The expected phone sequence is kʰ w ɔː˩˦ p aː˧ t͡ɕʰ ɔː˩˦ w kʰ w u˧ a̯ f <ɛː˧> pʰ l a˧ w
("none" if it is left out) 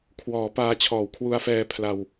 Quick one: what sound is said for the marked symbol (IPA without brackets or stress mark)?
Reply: ɛː˧